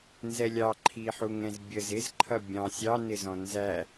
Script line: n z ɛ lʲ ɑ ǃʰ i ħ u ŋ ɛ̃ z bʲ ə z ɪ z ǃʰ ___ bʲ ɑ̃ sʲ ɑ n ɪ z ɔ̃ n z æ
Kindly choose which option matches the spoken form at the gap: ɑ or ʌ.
ʌ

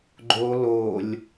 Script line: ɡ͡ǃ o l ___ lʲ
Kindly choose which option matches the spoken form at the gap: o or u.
o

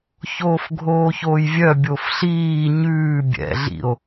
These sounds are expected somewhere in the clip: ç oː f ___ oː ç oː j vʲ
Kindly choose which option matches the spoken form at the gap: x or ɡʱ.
ɡʱ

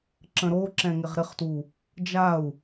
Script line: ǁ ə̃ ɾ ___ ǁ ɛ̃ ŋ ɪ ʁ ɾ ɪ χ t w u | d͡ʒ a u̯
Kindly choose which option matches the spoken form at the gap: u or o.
o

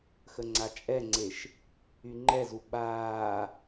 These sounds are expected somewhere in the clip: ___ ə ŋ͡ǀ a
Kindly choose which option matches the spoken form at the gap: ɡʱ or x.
x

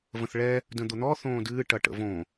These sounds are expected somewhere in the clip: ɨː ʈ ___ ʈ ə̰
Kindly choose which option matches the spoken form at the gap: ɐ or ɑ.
ɐ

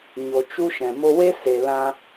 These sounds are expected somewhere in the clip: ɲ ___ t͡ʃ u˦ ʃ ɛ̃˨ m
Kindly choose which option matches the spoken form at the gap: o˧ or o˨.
o˨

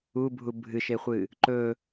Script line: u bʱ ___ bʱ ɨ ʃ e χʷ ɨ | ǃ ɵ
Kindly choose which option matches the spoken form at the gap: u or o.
u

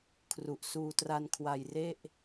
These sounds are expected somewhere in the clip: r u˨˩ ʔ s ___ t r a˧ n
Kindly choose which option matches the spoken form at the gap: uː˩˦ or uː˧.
uː˧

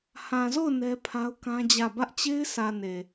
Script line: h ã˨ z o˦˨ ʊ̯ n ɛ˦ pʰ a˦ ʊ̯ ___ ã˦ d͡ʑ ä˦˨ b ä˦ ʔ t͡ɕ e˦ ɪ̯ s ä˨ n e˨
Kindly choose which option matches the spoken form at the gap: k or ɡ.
k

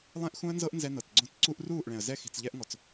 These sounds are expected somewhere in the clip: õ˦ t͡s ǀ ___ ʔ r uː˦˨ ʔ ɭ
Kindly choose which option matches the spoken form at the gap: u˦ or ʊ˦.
u˦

